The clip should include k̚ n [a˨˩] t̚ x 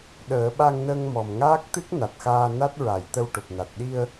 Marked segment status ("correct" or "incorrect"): correct